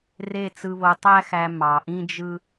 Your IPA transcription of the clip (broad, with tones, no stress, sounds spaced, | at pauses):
r e˦˨ t͡s ɯ˧ β o˧ tˤ æ˦ x æ˧ m ɑ˨ ʔ ĩ˦ d͡ʒ ɯ˦